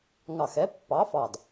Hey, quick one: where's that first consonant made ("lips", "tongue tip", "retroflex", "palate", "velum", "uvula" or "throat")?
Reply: velum